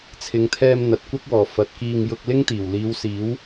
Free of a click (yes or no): yes